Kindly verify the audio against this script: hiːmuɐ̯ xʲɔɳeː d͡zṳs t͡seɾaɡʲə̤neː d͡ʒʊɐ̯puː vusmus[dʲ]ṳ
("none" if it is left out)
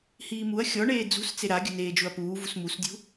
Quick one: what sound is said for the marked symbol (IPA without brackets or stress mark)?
dʲ